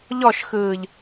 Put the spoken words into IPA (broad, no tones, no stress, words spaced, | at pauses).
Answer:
ʎɔʃxɯːʎ